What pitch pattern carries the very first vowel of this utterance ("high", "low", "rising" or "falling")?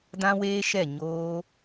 high